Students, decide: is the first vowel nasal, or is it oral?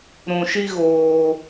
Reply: nasal